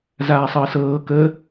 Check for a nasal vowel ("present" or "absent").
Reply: absent